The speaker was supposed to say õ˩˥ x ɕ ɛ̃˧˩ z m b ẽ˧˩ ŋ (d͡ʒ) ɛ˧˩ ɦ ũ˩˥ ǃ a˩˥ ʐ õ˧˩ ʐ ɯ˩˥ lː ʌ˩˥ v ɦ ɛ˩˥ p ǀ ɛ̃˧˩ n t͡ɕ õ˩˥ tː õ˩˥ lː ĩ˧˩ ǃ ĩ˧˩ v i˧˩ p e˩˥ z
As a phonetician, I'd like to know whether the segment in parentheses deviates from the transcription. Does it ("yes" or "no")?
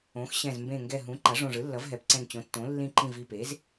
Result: yes